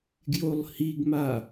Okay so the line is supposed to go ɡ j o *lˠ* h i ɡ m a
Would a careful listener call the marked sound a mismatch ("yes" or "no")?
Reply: no